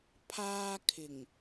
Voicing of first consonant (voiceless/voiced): voiceless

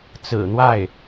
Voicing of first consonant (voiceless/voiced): voiceless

